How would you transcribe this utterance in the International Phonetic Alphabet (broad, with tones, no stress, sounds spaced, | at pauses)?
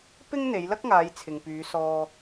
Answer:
p ɪ˥ ŋ n̪ e˨˧ j l ɐ˥ k̚ ŋ aː˨˧ j t͡sʰ ɪ˨ ŋ p yː˨˧ s ɔː˧